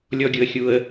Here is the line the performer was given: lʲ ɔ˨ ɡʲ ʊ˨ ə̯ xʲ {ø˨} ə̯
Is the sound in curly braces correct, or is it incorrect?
incorrect